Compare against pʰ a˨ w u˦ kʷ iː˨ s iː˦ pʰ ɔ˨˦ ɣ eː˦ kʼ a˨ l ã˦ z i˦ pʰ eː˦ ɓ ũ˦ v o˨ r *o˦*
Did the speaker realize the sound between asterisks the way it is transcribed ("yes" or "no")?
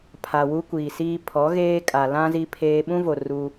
no